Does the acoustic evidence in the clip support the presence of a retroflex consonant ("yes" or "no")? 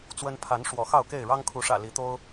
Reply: yes